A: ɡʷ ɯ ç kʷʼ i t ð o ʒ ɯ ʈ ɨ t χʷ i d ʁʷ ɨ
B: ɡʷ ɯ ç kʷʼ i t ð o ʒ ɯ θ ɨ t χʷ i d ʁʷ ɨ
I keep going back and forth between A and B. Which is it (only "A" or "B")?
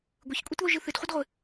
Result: B